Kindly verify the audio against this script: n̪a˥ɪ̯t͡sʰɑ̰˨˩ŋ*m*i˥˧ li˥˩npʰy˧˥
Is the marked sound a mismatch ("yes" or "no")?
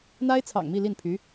no